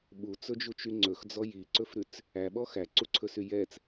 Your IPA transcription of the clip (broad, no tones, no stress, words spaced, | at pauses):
ɓut͡sɵd͡ʒut͡ʃy ŋ͡ǀɵxd͡zɔ jiǀɵfɾʉt͡s | æɓɔ xæǀuǀʰɵsy jɛt͡s